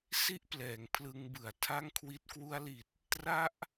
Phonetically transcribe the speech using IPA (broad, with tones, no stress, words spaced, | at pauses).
si˥˩ʔplɛː˩˦ŋpʰlɯ˧ŋ bɯ˨˩a̯ tʰa˥˩ŋkʰwi˦˥t̚ kwu˧a̯li˨˩t̚ | tra˦˥ʔ